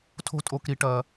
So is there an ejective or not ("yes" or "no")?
yes